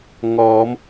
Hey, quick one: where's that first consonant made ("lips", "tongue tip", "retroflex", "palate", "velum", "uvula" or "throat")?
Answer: velum